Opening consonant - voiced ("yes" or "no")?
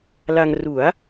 yes